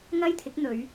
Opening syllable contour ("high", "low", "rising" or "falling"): high